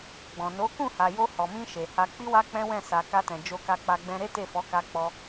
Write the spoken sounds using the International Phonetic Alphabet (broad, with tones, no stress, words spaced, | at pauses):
ɡ͡bɔ̃˨no˨˦ kũ˦˨ha˨jo˧ hɔ˨mĩ˧ ʃe˨ha˧ k͡pi˦wa˦ k͡pɛ̃˦wɛ̃˦˨ sa˨ ka˧tɛ̃˨ d͡ʒo˧ka˧k͡pa˧ ɡ͡bɛ̃˧ ɾe˦te˦˨fɔ˨˦ka˧ k͡pɔ˧